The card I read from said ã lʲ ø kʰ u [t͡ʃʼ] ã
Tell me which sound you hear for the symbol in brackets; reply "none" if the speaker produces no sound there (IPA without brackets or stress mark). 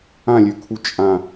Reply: t͡ʃʼ